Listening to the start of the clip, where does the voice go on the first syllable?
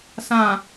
low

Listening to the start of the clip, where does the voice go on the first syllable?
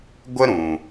high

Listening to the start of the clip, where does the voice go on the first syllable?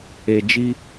low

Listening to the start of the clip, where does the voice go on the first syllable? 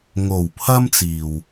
low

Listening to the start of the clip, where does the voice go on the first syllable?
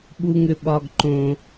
high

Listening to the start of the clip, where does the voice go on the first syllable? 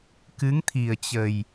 rising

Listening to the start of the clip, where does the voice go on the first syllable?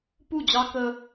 falling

